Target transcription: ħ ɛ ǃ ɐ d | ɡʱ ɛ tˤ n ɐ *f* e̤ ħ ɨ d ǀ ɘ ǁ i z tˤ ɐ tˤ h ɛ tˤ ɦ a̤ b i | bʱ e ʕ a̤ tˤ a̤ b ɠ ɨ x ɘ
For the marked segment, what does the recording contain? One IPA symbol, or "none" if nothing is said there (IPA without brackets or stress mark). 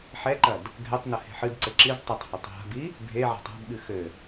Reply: h